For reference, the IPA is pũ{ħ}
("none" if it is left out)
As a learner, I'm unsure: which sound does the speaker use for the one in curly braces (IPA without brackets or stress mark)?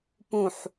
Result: ħ